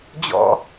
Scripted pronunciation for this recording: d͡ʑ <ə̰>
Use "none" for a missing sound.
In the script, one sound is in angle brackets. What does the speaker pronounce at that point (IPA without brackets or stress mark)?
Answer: ɔ̰